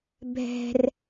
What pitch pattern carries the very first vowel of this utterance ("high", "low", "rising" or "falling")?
high